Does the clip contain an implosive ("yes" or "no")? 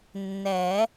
no